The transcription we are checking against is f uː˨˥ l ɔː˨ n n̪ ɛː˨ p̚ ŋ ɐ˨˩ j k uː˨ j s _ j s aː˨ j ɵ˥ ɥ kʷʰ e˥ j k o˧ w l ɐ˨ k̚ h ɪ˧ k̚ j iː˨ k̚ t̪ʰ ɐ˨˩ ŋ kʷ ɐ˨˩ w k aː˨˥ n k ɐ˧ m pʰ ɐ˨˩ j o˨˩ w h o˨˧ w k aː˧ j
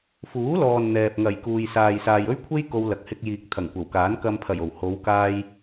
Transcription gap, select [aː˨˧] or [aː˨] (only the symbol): aː˨